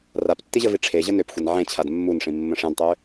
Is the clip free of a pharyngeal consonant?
no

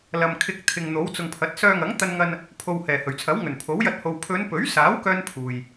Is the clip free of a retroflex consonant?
yes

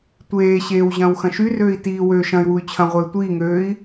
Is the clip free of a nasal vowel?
no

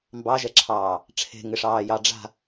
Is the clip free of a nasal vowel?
yes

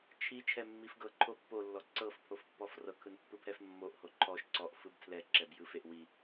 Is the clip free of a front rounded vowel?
yes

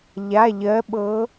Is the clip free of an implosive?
no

